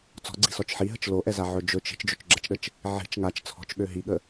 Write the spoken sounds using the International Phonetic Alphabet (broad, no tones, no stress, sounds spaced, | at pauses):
t͡s ɔ̤ ɡ͡ǀ i̤ s ɔ t͡ʃ ħ i ɦ ə t͡ʃ l o ʔ ɛ z a ʕ ɵ d͡ʒ ɵ t͡ʃ i̤ t͡ʃ d͡ʒ ɵ t͡ʃ ɡ͡ǁ ɛ t͡ʃ ɗ ə t͡ʃ | ʕ i̤ t͡ʃ ŋ a t͡ʃ t͡sʰ ɔ̤ t͡ʃ ɠ ø ɦ i ɠ ə